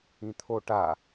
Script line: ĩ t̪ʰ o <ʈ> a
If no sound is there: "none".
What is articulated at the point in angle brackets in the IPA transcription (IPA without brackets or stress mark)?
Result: ʈ